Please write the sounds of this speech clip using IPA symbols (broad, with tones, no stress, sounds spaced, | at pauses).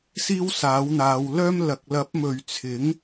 s iː˥ w s aː˨˥ w n̪ aː˨˧ w l œː˥ m l ɐ˨˥ k̚ l ɐ˨˥ p̚ m ɵ˨ ɥ t͡sʰ ɪ˨˥ ŋ